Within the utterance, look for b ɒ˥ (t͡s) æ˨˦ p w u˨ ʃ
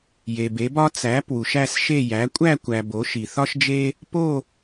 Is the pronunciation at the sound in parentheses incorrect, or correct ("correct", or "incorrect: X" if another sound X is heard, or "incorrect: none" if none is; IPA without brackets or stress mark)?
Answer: correct